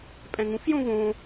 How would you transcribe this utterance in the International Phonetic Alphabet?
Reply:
pʼ ɛ̃ ŋ ũ f j õ v õ

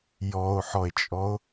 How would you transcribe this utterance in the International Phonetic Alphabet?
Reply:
j ɔ o̯ ħ ɔ e̯ t͡ʃʼ ɔ o̯

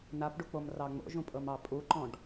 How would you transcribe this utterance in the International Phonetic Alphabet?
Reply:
n a p ɖ u k͡p o m r ɑ ŋ͡m o̰ ʒ ũ pʼ ɤ m ɑ pʼ u ǃ ɔ̃ ɖ

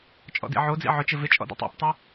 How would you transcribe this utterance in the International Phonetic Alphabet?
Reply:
t͡ʃʼ ɔ̰ d ḭ ʕ o d͡z ḭ ʕ ʊ t͡ʃ ɪ v ɪ t͡ʃʼ ɔ̰ d o̰ tˤ ɔ̰ p tˤ y

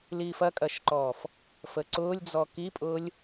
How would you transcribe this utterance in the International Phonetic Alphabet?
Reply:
l iː f ɐ kʼ ɐ ʃ ǃ ɔː f | f ə ǀ ʊː lʲ d͡z ɔ k i pʼ ʊː lʲ

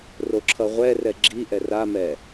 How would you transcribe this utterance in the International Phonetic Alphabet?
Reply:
r o ǁʰ ʌ ʁʷ ɛ r ɛ ɡ͡ǁ i ʔ ɛ r a m ɛ

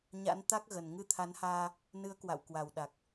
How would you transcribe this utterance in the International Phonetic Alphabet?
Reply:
ɲ a̰˧˥ n t̪ a˦˥ k̚ ɣ ə˨˩ n ŋ ɨ˧ t̪ʰ a˨˦ n h aː˧ | n ɨ˨˦ ə̯ k w a̰˧˨ w k w a˨˩ w ɗ a˨˩ k̚

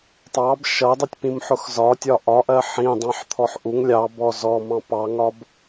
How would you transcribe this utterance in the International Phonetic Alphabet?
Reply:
tˤ ɑ b ʃ ʌ dˤ ʌ tʲ p ĩ m ħ ʊ x z ɒ tʲ ɒ ʔ ɒ ʔ ɜ ħ ĩ dˤ ɑ̃ ħ t̪ʰ ɔ ħ ʔ u ŋ lʲ ɑ b ɔ z ɔ m ɑ̃ p ɑ ŋ ɒ b

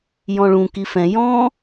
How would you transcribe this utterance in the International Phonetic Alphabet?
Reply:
j ɔ̃ ɭ ũ k i f ɛ̃ j ɔ̃

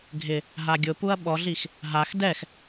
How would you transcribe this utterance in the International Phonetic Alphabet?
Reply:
ɡʱ ɪ | ɦ a ɡʲ ʊ p u ɐ̯ ɓ ɔ ɮ i x | ɦ a x d ɛ x

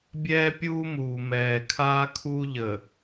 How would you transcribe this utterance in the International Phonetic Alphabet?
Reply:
bʲ ɛː˦ pʲ uː˦ m uː˨ m ɛː˨ kʰ aː˦ kʰ u˦ ʎ ə˨

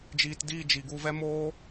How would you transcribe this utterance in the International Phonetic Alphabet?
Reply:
d͡ʒ iː˨ t d iː˦˨ d͡ʒ i˨ ɡ u˧ v ɛ˦ m oː˦

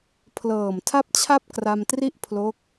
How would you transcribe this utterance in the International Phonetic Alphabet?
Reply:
pʰ l ɤː˨˩ m tʰ a˥˩ p̚ t͡ɕʰ a˥˩ p̚ k r a˧ m t r i˥˩ ʔ pʰ l o˦˥ k̚

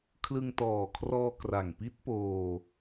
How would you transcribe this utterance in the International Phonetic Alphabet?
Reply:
kʰ l ɯ˧ ŋ t ɔː˨˩ kʰ r ɔː˧ k r a˨˩ ŋ p i˦˥ t̚ p oː˧

